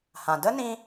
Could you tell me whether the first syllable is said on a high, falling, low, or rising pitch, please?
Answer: low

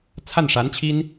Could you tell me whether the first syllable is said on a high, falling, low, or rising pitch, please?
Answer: falling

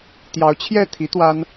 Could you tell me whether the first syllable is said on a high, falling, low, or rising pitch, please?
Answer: rising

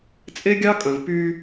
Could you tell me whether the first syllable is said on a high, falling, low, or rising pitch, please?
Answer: high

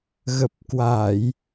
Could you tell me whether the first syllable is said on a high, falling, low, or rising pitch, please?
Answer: low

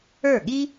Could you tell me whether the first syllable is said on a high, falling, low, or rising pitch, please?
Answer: falling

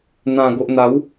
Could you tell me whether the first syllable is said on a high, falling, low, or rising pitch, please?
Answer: low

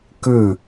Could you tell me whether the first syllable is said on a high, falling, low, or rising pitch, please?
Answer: falling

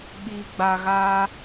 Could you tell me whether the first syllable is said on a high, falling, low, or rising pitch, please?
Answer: low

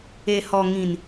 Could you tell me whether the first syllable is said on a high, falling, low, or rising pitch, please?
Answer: low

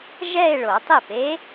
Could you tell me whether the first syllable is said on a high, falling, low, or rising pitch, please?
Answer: falling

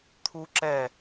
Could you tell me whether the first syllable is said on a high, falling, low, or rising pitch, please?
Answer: high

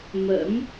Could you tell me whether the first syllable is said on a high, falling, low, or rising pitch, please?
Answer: rising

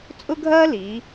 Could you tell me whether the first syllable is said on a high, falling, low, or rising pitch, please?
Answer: high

